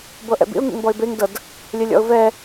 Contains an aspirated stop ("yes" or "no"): no